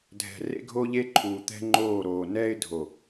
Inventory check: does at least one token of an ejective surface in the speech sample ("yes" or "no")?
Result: no